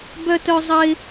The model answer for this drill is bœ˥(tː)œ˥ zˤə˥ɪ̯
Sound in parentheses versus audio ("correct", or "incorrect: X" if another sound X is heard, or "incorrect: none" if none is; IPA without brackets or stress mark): incorrect: t